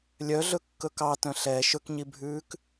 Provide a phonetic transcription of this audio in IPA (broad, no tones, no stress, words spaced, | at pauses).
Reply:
lʲœɮɵkːɵ kɑtœ̃ ɬɛ ʃɵkɲibʱʉːk